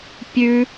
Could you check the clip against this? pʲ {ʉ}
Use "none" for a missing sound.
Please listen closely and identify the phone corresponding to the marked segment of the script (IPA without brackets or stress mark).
ʉ